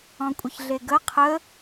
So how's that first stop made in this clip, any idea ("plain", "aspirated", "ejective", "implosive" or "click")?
ejective